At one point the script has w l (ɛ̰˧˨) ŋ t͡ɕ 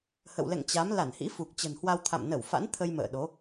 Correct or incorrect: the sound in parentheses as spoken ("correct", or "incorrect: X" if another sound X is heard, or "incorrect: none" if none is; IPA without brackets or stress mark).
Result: correct